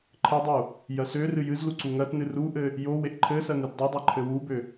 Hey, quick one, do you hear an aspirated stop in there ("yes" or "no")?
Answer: yes